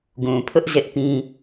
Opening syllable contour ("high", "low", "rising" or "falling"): low